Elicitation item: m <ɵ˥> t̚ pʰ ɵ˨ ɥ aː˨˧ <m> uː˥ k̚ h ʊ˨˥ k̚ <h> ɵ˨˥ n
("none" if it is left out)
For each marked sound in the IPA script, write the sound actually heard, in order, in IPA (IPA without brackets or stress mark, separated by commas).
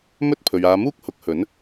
ɵ˥, m, h